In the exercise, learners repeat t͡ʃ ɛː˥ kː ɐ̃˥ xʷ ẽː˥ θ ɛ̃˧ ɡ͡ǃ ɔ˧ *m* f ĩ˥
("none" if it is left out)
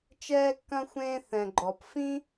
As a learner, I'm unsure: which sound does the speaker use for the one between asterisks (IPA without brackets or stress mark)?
p